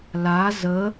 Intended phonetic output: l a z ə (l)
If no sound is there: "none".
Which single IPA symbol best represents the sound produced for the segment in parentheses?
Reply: none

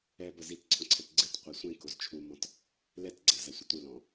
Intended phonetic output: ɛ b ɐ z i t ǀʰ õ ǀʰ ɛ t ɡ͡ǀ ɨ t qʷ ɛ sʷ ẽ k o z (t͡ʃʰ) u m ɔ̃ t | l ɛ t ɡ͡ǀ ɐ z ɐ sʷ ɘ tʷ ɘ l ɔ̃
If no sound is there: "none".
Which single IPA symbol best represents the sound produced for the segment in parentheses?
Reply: t͡ʃʰ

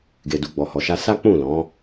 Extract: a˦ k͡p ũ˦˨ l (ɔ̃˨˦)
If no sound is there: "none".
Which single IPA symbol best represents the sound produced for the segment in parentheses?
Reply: ɔ̃˨˦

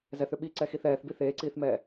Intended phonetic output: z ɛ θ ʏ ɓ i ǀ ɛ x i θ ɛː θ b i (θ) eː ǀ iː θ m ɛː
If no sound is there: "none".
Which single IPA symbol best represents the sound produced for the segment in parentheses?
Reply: θ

